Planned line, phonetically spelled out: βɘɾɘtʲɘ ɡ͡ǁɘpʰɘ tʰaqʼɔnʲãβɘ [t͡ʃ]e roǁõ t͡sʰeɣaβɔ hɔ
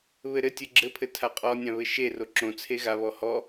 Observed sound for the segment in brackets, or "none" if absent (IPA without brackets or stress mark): ʃ